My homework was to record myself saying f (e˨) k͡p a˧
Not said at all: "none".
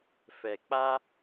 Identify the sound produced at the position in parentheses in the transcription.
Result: ɛ˨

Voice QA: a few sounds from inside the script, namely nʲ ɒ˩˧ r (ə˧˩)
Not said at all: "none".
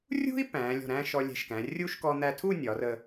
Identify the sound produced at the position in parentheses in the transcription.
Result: ə˧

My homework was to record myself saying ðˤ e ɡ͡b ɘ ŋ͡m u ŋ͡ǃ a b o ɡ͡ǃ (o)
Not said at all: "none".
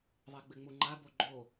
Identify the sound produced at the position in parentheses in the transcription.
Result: o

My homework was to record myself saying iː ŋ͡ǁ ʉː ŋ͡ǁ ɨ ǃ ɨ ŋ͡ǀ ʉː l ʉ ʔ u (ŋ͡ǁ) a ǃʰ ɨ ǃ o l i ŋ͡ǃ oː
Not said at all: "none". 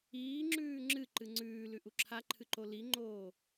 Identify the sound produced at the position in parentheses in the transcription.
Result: ǁʰ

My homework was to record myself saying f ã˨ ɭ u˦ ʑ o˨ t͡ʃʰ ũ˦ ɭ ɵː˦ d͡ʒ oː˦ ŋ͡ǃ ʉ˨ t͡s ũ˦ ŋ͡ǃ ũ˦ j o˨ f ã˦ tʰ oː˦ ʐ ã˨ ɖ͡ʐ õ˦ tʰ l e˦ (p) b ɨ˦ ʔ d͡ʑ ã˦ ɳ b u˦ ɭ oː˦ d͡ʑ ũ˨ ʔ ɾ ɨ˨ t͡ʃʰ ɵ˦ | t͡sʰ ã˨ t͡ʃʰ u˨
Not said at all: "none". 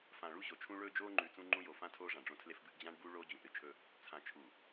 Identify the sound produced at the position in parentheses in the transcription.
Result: f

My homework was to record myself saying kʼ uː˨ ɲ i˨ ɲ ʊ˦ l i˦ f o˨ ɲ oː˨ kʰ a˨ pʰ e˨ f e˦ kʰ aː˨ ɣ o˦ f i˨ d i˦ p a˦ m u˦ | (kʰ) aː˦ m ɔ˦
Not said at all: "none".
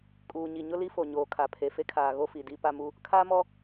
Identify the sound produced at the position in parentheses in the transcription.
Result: kʰ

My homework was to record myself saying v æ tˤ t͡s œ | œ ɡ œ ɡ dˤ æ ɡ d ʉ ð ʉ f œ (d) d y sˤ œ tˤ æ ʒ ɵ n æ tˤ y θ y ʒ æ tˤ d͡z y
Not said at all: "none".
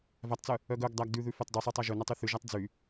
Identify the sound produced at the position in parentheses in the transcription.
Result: tˤ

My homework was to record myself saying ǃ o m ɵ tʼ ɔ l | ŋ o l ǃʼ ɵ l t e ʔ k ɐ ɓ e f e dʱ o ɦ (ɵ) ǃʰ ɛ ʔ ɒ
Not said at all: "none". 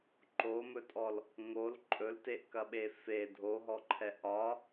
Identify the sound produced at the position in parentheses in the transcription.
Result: ɔ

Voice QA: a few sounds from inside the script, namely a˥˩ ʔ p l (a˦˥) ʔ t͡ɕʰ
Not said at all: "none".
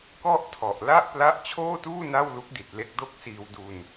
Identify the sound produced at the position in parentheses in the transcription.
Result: a˦˥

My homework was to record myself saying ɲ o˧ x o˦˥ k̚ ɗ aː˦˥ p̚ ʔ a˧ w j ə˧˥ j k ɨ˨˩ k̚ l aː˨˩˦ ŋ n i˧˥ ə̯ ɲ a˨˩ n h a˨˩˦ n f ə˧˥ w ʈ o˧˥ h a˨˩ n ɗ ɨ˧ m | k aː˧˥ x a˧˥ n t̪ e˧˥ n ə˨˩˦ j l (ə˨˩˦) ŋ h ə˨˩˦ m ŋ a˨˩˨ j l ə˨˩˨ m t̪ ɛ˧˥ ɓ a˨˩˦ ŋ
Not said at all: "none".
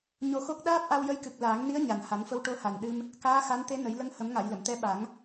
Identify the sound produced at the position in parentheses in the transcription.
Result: ə˧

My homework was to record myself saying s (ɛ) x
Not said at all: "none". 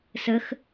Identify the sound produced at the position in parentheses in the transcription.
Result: ə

